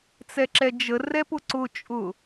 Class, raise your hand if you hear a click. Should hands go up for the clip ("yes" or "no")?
yes